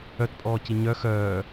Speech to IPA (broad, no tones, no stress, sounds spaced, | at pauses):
œ t pʼ ɔː c i ɲ œ x œː